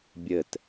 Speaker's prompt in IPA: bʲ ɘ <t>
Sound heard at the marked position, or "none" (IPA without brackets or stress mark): t